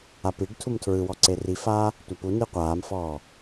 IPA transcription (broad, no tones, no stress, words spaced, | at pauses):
apiɖtʰum tʰɹɯwɔ ǀerifaː | tʷapuni qʷaːmfɔː